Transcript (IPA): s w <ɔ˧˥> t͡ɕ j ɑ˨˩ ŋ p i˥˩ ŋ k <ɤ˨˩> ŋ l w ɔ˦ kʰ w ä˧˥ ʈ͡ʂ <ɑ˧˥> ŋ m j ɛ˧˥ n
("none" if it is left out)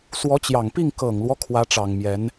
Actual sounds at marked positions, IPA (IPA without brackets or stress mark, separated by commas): ɔ˧˥, ɤ˨˩, ɑ˨˩